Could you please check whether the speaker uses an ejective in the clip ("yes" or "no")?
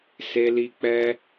no